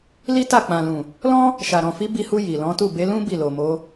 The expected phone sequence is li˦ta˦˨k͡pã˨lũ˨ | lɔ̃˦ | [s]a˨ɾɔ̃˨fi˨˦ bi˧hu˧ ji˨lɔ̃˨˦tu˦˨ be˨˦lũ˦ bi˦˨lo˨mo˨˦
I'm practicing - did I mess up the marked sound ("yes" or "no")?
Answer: yes